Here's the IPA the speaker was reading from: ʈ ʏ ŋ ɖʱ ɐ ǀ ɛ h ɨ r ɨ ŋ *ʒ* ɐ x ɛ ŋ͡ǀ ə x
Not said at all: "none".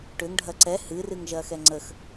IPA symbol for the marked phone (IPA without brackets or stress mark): ʒ